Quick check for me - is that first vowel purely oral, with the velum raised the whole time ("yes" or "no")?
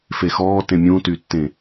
yes